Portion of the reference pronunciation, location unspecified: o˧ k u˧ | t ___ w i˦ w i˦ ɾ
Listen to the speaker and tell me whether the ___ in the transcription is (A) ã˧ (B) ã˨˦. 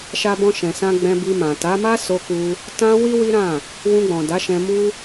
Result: A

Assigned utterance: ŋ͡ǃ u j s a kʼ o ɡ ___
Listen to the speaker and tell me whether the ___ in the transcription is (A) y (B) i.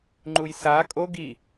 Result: B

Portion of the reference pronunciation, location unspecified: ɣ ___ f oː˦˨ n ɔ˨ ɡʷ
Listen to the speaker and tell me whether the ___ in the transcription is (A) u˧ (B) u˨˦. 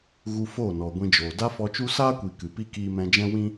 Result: A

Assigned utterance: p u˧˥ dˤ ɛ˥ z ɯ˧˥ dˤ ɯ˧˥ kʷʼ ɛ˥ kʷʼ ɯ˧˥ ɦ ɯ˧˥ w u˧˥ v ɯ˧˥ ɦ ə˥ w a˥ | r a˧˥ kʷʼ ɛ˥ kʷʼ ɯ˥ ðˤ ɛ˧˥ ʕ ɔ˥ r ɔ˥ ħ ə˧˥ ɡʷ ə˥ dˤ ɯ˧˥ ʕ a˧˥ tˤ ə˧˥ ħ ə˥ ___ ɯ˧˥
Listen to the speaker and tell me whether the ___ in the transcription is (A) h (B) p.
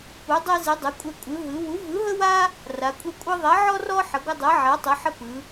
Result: B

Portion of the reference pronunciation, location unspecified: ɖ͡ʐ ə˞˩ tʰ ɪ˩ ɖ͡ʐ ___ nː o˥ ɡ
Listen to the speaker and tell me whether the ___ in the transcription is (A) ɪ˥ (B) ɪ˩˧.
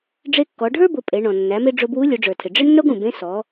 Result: A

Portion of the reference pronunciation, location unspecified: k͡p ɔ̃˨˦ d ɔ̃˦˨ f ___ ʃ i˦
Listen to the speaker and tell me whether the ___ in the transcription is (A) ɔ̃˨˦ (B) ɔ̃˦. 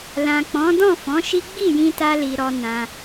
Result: A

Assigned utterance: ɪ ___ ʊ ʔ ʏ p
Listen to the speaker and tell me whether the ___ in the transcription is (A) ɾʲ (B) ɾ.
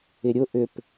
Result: A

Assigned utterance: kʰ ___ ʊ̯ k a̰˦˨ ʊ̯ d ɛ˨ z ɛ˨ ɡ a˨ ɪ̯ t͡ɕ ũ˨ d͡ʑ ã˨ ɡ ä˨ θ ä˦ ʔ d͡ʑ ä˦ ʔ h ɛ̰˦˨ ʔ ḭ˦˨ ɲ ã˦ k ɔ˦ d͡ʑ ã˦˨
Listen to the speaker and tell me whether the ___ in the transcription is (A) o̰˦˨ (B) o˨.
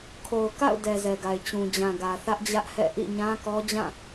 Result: B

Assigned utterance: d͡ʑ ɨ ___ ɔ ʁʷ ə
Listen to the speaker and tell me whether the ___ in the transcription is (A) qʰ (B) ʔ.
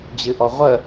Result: B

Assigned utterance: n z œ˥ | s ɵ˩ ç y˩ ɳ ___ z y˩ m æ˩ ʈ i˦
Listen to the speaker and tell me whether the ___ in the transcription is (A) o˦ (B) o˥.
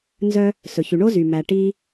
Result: B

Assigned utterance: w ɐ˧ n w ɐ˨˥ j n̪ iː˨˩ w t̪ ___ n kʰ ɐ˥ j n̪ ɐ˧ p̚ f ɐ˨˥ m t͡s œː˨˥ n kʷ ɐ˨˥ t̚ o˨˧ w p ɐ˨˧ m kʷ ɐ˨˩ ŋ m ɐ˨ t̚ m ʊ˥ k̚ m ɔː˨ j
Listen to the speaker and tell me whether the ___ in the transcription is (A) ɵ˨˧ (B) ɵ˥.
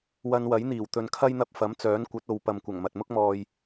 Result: A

